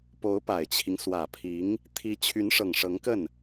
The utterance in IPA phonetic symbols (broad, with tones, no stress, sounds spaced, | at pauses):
p o˧˥ ʊ̯ p a˨˩ ɪ̯ t͡ɕʰ i˦ ŋ s w ä˨˩ pʰ i˧˥ ŋ | t̪ʰ i˧˥ t͡ɕʰ y˧˥ n ʂ ɤ˨˩ ŋ ʂ ɤ˧˥ ŋ k ə˥˩ n